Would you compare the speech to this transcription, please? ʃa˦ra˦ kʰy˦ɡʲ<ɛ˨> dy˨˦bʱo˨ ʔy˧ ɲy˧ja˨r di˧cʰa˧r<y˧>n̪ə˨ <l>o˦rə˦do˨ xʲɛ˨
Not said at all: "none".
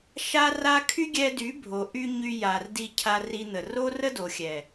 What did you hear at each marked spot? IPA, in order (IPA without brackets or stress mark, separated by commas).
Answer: ɛ˧, i˧, r